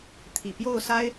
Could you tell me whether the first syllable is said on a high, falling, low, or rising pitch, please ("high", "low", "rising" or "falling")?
low